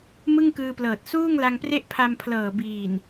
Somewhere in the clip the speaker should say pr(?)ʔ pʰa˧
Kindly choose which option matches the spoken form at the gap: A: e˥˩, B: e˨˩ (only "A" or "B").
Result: A